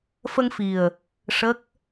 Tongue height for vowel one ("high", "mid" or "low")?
mid